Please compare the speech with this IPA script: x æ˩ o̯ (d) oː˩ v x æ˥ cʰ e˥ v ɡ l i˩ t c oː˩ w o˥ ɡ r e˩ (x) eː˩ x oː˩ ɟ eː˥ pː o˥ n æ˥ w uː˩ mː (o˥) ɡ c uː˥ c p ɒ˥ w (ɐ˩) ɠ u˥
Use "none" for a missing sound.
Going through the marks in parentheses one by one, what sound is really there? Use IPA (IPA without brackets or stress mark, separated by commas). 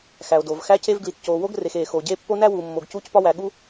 d, x, o˩, æ˩